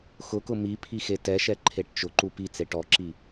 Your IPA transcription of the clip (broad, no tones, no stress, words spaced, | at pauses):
xʊkʊ mipʰixe tɛʃɛ ǃʰeʈt͡ʃʊ ǃupi t͡seʈɔǁi